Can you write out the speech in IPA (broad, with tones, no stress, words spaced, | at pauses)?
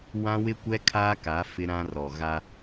wã˦wɪ˦kʷɛ˦ kʰa˦ka˨˦ fɪ˦ɾã˦rɔ˨ ɣa˦